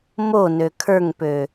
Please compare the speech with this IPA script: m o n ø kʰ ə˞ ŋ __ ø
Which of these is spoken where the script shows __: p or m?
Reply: p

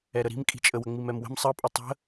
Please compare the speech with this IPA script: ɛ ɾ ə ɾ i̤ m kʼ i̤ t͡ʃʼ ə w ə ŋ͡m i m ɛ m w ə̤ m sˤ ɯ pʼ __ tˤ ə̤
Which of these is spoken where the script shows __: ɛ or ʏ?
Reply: ɛ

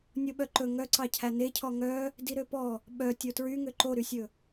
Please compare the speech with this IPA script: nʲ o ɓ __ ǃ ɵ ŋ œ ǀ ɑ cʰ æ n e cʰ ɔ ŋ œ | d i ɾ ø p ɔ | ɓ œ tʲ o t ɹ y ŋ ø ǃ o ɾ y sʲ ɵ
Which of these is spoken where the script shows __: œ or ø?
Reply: œ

